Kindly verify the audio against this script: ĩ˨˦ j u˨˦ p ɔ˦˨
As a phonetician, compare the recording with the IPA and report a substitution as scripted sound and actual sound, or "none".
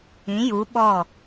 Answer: p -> ɓ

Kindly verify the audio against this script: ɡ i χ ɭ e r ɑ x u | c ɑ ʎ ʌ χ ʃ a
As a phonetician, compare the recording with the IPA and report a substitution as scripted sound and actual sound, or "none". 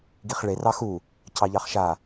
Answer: ʌ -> ɑ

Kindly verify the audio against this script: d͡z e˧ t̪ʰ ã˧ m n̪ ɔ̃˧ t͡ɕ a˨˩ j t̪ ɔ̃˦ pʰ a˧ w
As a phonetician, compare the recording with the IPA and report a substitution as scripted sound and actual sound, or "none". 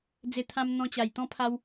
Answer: none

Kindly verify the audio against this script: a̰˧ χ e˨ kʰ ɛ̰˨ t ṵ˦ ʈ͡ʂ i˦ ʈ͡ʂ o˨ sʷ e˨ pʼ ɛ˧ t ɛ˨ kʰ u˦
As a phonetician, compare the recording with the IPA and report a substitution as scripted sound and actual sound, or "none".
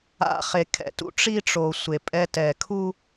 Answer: none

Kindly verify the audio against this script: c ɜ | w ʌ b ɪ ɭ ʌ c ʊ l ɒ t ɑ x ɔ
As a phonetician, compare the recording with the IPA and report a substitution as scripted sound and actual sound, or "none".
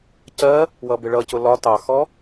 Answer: none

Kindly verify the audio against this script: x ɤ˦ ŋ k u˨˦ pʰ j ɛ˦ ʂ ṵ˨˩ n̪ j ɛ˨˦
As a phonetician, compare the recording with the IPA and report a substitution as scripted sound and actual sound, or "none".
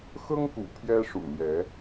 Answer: u˨˦ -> ṵ˨˩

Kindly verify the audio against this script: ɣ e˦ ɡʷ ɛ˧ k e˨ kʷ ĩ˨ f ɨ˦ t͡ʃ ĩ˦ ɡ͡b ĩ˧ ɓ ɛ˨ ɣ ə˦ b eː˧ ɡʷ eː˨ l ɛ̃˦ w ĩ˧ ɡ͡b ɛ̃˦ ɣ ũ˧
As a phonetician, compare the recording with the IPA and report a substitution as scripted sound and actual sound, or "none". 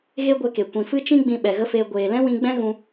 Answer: b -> f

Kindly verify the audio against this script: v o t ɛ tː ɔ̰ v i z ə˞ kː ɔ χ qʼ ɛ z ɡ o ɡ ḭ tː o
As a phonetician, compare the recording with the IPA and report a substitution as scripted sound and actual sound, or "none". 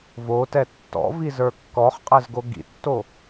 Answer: none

